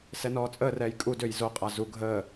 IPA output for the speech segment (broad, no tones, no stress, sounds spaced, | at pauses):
s ɛ n ɔː t͡sʼ əː r ɛː j kʼ u d ø j z o qʼ a z u ɡʱ əː